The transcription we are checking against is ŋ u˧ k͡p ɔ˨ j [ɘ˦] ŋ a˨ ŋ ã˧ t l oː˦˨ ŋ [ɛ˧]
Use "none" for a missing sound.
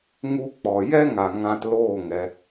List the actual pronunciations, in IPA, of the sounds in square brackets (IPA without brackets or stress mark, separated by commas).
ɛ˦, ɛ˧